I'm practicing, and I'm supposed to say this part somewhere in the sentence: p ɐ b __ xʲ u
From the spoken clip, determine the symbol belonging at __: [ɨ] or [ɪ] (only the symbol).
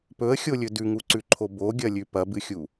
ɨ